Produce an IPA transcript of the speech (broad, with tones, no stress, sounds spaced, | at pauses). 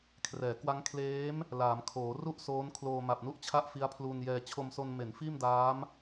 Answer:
kʰ r ɛː˩˦ k w a˦˥ ŋ kʰ l eː˦˥ m | l aː˩˦ m kʰ oː˩˦ r u˥˩ ʔ s oː˦˥ n kʰ l oː˧ m a˨˩ p̚ n u˥˩ ʔ t͡ɕʰ a˥˩ ʔ f i˦˥ a̯ pʰ l uː˧ n j ɛː˧ t͡ɕʰ o˧ m s o˧ n m e˩˦ n f iː˥˩ m d aː˦˥ m